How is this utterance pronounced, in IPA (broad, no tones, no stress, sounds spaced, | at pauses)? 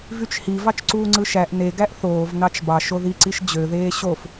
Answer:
v y t͡ʃ h i v ɑ t͡ʃ ǀ uː ŋ͡ǀ ɯ ʃ æ ʔ n e ɡ æ ʔ θ oː v n ɑ t͡ʃ b ɑ ʃ o ð i ǀ i ʃ d͡ʑ ø ð eː ɕ o f